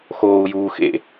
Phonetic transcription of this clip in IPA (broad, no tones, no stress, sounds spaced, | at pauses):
x oː u̯ j uː x ḛ